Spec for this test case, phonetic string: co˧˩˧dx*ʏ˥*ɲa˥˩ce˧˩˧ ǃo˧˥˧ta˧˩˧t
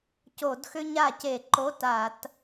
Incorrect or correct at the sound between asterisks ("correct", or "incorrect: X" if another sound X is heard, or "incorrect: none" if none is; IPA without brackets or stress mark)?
correct